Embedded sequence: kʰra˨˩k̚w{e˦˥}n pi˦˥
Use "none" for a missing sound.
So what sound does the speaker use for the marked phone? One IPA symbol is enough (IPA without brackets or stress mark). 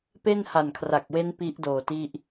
e˦˥